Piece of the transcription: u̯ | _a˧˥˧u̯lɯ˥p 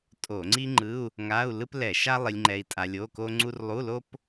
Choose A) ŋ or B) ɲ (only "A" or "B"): A